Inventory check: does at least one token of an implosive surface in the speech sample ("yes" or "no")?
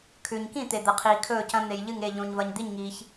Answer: no